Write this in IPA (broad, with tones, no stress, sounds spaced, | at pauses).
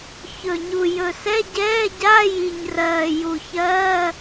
ç ɵ˨˩ ɲ u˨˩ j ɵ˨˩ s ɛ˧˥˧ ɟ ɛː˧˥˧ ɟ a˧˥˧ j i˨˩ ɲ r ɜː˨˩ j u˨˩ ç ɜː˧˥˧